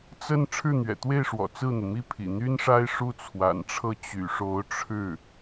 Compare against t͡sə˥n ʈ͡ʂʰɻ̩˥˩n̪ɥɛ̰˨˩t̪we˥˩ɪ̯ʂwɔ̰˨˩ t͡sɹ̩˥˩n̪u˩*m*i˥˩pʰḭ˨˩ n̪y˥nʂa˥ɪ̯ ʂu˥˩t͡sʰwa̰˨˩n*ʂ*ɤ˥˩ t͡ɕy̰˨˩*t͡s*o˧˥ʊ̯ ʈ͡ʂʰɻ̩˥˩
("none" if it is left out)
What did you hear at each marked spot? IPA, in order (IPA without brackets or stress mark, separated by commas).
m, ʈ͡ʂʰ, ʂ